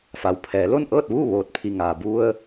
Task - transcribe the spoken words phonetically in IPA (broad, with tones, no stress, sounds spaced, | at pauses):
f a˩˧ w pʰ ɛː˩˧ l o˥˨ n ʔ ɤː˥˨ t̚ ʋ uː˥˨ ʋ oː˧˩ t̚ pʰ i˧˩ ŋ aː˩ b u˧ ə̯